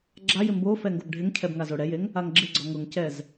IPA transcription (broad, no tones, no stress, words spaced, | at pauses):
ɡ͡ǁajɪ mbo fɛŋɡobɖʱɪŋcʰɛb ŋazoɽɛjeŋ | aŋɡ͡ǁɪɡ͡ǀɔ ŋʊŋcɛz